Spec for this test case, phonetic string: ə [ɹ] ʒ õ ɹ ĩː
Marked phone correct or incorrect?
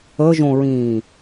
incorrect